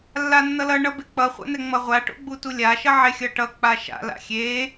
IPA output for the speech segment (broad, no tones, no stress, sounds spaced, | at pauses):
lː a nː ʌ l ʌ ɳ ʌ b e k͡p ʌ χʷ a̰ n ɛ ŋ͡m ʌ ʁʷ a ʈ o̰ ɡ͡b u t u lʲ a ʃ ʌ ʕ e xʲ ʌ ʈ ʌ k͡p a ʃ a̰ l a̰ xʲ e